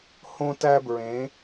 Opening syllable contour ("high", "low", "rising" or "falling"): high